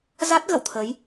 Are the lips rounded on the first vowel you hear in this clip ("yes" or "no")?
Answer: no